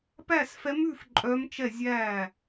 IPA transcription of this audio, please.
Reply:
p æ˥˩ s f ɛ˧˥ m ʉ˥˩ f ǃʼ œ˧˥ m t͡ʃ ɛ˥˩ zʲ æː˥˩

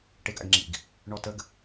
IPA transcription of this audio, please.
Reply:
ʈ e ɡ a̰ ɡ ŋ͡ǁ ḭ ɡ | ɳ ɔ t ə ɡ

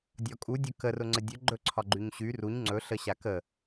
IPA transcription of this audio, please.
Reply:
dʲ ɒ kʼ u dʲ ɵ k ə r ʊ ŋ͡ǀ ə dʲ ɵ ɡ͡ǃ ɵ ǀʰ ɒ ɡ͡ǃ y ɲ ɕ y r u ɲ ŋ͡ǀ ɵ ɬ ə ɕ a k ə

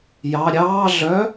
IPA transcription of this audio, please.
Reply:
j ɑ ɾʲ ɑː ɮ œ

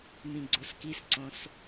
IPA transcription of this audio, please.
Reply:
m ĩ ɡ͡ǀ o s k i s ǀ õ s

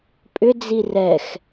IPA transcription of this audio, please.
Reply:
pʼ ʏ d͡z i r ɛ x

